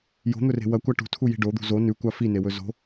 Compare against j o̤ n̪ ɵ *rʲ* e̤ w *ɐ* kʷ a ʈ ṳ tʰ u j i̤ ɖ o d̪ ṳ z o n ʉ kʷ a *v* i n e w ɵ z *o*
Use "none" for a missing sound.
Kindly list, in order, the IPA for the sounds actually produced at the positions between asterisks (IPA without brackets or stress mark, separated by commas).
r, ɐ, f, o̤